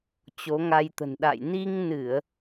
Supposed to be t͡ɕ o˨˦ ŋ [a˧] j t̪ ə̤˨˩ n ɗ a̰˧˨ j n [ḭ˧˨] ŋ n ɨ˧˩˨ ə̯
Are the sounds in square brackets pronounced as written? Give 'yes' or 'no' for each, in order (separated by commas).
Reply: yes, no